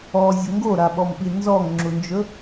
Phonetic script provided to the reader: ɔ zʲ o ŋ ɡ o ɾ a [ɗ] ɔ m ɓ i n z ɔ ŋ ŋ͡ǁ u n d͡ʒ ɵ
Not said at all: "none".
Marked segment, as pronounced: ɓ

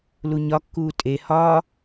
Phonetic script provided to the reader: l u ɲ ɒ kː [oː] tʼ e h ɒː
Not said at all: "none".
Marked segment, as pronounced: uː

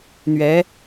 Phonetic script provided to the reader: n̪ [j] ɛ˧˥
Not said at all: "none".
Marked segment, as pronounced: ɥ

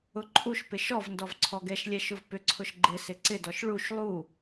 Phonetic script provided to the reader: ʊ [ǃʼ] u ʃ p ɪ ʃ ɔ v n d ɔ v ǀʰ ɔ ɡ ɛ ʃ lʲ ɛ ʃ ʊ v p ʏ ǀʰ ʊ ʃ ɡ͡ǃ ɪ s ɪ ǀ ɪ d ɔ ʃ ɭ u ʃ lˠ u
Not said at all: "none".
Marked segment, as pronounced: ǃʼ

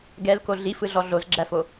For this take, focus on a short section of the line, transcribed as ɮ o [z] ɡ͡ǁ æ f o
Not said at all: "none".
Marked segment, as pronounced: z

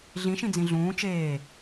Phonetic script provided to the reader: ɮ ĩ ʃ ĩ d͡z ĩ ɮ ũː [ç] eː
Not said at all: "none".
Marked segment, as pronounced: t͡ʃ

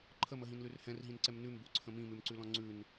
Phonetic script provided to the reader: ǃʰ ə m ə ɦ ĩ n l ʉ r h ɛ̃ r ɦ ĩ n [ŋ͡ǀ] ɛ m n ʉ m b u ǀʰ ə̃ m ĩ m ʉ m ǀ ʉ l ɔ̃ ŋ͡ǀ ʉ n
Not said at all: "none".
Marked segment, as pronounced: ǀ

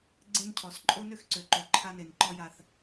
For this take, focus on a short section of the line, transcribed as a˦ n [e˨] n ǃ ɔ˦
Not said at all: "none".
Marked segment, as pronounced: e˨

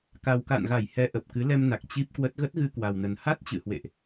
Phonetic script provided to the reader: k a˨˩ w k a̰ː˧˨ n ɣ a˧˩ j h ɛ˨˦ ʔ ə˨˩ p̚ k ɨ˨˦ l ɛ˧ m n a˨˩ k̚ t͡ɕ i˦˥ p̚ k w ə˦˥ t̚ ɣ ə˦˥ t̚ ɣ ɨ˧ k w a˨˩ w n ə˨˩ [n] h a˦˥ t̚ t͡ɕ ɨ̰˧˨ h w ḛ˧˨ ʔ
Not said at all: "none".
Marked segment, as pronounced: n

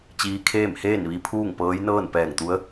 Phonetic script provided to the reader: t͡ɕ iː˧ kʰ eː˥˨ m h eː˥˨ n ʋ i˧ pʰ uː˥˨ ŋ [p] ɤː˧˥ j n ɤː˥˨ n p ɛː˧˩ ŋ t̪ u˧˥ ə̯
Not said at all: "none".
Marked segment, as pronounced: p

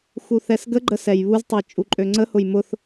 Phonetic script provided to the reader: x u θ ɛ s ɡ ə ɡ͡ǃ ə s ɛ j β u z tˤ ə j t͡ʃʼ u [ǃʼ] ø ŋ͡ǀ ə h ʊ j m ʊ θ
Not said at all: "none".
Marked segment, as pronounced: ǃʼ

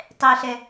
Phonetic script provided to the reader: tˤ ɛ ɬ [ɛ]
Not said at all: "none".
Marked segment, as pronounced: ɛ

